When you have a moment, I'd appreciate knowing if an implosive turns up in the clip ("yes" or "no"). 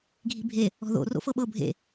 yes